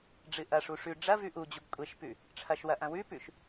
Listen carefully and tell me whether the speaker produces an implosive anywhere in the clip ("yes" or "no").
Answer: no